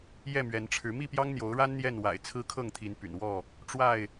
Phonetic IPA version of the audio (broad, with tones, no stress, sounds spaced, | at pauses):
j ɛ˥˨ m ɥ ɛ˨˦ n ʈ͡ʂʰ ɻ̩˨˦ m i˥˨ p j ɑ˦ ŋ n̪ j o˨˦ ʊ̯ ɻ a˦ n n̪ j ɛ˥˨ n w a̰˨˩ ɪ̯ t͡sʰ ɹ̩˦ kʰ ɤ˥˨ ŋ t̪ʰ i˨˦ n p y̰˨˩ n w ɔ˥˨ | ʈ͡ʂ w a˥˨ ɪ̯